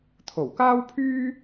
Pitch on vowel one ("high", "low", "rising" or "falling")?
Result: low